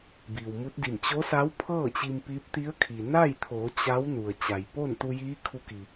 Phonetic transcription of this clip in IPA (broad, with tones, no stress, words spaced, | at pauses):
biː˩wmu˧˥t̚di˧˩m t͡ɕo˧˥sa˧˥wpʰɤː˥˨ t͡ɕi˧mpiː˧˥p̚ t̪i˧˥ə̯kʰi˩ na˥˨jt̪ʰoː˩˧ t͡ɕa˧˥w nu˩ə̯t͡ɕa˩j po˥˨nt̪u˧jiː˧˥ kʰu˧ki˩